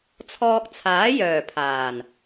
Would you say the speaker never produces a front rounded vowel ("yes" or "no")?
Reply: no